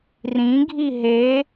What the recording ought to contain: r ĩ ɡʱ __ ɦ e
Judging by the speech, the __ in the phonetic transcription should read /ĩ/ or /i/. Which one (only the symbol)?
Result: i